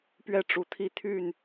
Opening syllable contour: falling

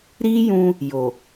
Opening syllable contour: high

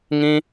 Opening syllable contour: high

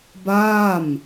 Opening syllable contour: falling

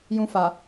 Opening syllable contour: high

